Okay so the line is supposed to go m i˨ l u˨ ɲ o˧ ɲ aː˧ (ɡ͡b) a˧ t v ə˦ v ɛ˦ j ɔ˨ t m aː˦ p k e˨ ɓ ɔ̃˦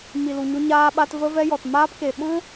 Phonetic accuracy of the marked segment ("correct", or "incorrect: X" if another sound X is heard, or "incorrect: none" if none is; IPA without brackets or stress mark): incorrect: ɓ